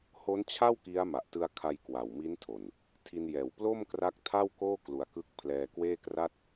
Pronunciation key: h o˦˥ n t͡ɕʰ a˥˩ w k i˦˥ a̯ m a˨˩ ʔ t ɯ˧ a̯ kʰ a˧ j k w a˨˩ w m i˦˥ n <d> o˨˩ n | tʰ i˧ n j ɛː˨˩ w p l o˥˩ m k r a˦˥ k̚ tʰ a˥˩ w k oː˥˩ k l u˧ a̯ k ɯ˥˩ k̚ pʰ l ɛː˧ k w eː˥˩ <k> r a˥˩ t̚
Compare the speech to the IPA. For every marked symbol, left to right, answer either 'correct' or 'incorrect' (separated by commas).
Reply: incorrect, correct